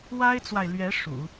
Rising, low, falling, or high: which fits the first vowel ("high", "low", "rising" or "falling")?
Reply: high